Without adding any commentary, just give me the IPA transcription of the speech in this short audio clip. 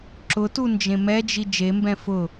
ǁʊtu nd͡ʒẽmɛd͡ʒi d͡ʒembɛ̃ fʊ

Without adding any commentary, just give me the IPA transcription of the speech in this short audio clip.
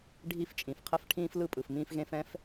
ɖʱi˧˩ft͡ʃʼĩ˩fqʰə˧˩f ʈʰĩː˧flɯ˧ pʼɯ˩fmĩː˧fɣẽ˧f ɛ̃˧f

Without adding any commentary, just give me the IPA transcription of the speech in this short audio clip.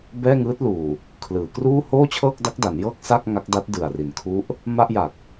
bɛː˥˩ŋɯː˦˥t̚luː˨˩ | kʰlɯː˩˦kruː˥˩ hoː˥˩t͡ɕʰɤː˥˩k̚ da˦˥k̚da˩˦n jɤː˥˩k̚sa˥˩k̚ ŋa˦˥k̚da˦˥t̚dɯ˨˩a̯ri˩˦n kʰu˦˥ʔ | ma˥˩ʔja˨˩k̚

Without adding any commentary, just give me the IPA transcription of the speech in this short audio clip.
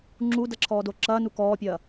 ŋ͡ǁudɐǁʰɔːdo ǁɐːnu kɔːpʲɐː

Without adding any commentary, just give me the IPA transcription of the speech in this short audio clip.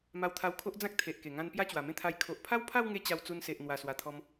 ma˧wt̪ʰa˧wkʰo˦ʔd͡zã˦k̚ t̪ʰe˨ʔke˨˩ŋã˧n pja˦t͡ɕwa˨˩mẽ˦t̪ʰa˧j kʰo˨ʔpʰa˦wpʰa˥˧wŋe˧ t͡ɕa˧wt͡su˧nse˨ʔ n̪wa˨˩swa˨˩t̪ʰɔ˧m

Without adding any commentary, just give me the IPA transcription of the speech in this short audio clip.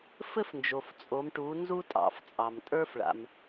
fɘ˥fnd͡ʒo˩ft͡sʼo˩˧m ʈu˩˧ nzu˥tʼɑ̰˧˩˧ft͡sʼɑ˩m tʼə˞˥fɭa̰˩m

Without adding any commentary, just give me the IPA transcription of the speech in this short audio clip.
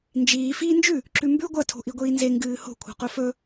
nd͡ʒiː fiːnd͡ʒʉ | ǁʉmbʉ ɡʷɐ tʰo̤ʔiɡʷiːnze ŋɡɨːho̤ kʷʰa̤qɵfɵ

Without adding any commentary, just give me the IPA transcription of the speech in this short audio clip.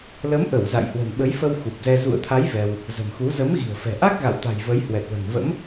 lə˨˦mʔə˧˩w za̰˧˨jhwə̤˨˩nɓə˨˦jfə˧w xu˨˩p̚zɛ˧ zṵ˧˨ə̯t̪ʰa˨˦j vɛ˧w | zə̤˨˩mxu˨˦ zə˨˦mɣi̤˨˩ə̯fɛ̤˨˩ʔa˦˥k̚ ɣa̰˧˨wt̪a̤˨˩j və˨˦jhwɛ˨˩t̚lə̤˨˩n və̰˧˥m

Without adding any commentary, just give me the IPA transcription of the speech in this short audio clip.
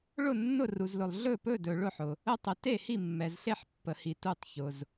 ɭʊ˦˨ nːʊ˦˨ru˨zlʊ˨lˠ ɮɵ˦˨pɵ˦˨dɵ˨ ɭʊ˦˨ħʊ˨ | ə˦˨tˤə˨ te˦˨hi˦˨mːɛ˨zɬe˦˨ħ pːə˨hi˨ tu˦˨tˤçʊ˨z

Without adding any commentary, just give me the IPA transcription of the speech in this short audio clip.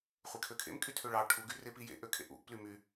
χʷekʰøkʰḛm kʼytʰøɭɑ ʈʰu ɡyrepijḛ ʔøkʰḛʔṵʔ plymy

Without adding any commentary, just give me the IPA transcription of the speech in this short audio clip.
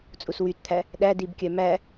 t͡sʼuswytt̪ʰæ | ɗædibkʲœ mæ

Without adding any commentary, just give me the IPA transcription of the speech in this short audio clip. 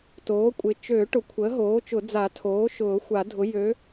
toː˩˥kʷʼɪ˩˥ t͡ʃø˨˩˦ ʈʊ˩˥kʷʰəː˩˥ɦoː˩˥t͡ʃʊ˨˩˦ d͡za˨˩˦ tʰoː˩˥ʃʊː˨˩˦ xʷa˨˩˦dʱʊ˩˥ jø˩˥

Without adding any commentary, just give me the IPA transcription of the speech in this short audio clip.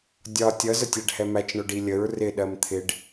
dʲɒ tʲʌ zətʲæɖhɛmæt͡ʃ ɳʊɖilʲəɹ rɪ ɗɜmt̪ʰɪɖ

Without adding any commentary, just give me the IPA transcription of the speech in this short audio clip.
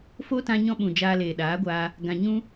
fo˦tã˧ ɲɔ̃˧ɓũ˨ d͡ʒaː˧leː˨ɗaː˨˦ɡʷaː˧ | ɡã˨ ɲũ˧

